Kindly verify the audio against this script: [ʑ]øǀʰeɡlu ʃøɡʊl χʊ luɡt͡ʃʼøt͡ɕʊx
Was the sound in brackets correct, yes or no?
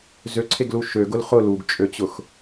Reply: no